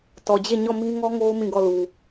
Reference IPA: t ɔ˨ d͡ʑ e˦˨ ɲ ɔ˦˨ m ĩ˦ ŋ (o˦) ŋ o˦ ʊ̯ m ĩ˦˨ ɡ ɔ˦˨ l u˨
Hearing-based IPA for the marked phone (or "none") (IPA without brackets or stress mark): ɔ˦